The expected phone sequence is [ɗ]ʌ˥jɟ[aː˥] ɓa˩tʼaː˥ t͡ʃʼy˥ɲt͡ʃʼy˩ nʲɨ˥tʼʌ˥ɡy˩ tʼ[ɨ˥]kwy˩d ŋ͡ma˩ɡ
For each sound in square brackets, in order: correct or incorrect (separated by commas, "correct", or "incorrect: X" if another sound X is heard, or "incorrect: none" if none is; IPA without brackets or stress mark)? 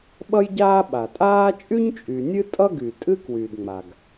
incorrect: ɓ, correct, correct